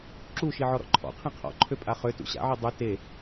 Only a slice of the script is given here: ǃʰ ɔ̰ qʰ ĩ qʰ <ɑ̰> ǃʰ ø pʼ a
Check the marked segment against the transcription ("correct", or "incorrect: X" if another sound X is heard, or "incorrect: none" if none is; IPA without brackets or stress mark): incorrect: ɔ̰